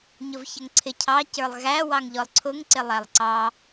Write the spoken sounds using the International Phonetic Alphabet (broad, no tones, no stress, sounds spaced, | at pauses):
ɲ ʊ v ç ə ŋ ǀʰ ɪ cʰ ɑ c ə˞ lˠ ɣ æ w ɑ ŋ ʎ ɔ lˠ ǀʰ ʊ ŋ ǀ ɪ lˠ æ lˠ ǀ ɑ